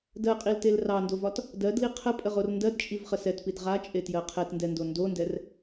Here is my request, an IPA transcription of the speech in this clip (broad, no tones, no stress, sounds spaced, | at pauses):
d ɜ qʼ i l t e l r ɑ n d o v ɒ t | d ɜ d l i qʰ ə pʼ ə ʁ o r n d ɜ d t͡ʃʼ i v χ ə s ɛ t p i d ʁ a t͡ʃʼ e t j ɜ qʰ ɛ t n d ɛ n d o n d o n d ɛ r